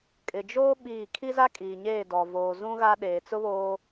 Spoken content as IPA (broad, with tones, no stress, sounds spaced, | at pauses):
kʼ ɪ˨ d͡ʒ oː˦ ɓ iː˦˨ kʰ i˦ z a˦ kʼ iː˨ ɲ eː˦˨ d ɔ˨ v oː˨ z ũ˦ ɣ a˦ ɗ eː˨ t͡s ʊ˦ β oː˦